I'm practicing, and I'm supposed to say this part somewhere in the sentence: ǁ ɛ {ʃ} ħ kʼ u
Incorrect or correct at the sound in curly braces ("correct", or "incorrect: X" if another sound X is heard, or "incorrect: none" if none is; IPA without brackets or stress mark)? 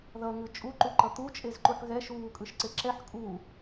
incorrect: none